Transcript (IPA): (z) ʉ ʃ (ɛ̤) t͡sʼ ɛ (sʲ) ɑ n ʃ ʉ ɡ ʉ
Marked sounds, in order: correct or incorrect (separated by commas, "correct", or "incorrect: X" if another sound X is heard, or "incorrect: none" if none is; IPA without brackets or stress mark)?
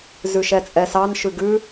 correct, incorrect: ɛ, incorrect: s